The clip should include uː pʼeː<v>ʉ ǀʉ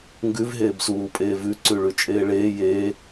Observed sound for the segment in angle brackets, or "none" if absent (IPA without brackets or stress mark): v